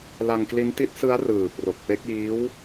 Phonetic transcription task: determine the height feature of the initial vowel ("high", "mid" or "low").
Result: low